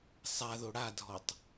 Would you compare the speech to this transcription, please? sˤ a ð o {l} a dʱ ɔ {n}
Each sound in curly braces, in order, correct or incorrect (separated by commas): incorrect, incorrect